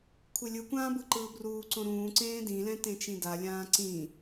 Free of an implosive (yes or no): yes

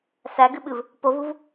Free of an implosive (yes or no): no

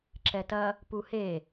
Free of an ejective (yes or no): yes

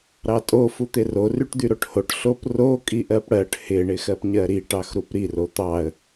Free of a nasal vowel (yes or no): yes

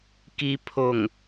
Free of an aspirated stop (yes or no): no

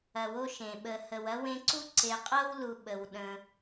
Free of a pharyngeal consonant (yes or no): yes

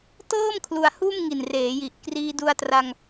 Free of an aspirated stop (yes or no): no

